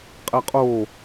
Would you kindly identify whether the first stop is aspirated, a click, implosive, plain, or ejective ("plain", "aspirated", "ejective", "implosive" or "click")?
ejective